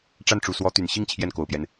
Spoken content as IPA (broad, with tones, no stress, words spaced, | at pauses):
ʈ͡ʂa˥˩nʈ͡ʂu˨˩swɔ˧˥t̪y˨˩n ɕi˥˧ŋ t͡ɕʰjɛ˥˩nko˨˩ʊ̯pjɛ˦n